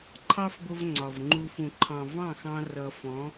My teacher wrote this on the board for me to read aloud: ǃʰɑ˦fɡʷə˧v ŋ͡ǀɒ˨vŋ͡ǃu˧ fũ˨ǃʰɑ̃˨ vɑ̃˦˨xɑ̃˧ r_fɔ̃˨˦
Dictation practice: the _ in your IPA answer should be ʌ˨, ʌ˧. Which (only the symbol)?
ʌ˨